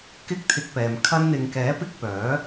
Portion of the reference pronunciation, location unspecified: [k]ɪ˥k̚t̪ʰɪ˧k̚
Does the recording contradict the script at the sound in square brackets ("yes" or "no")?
no